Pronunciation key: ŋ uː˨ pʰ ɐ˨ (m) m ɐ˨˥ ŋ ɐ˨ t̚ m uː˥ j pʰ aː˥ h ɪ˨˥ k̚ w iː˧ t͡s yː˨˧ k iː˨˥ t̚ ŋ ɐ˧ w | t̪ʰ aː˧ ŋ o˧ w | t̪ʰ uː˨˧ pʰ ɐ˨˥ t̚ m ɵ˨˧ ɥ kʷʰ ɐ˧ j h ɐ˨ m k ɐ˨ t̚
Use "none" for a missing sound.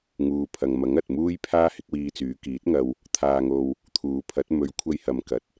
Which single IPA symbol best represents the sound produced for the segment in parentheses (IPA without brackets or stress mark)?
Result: ŋ